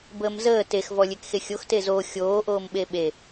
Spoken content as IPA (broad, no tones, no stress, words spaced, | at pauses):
bəːmzəː tex vɔlʲekxexʲox tezo xʲoː ʔoːmɓeɓe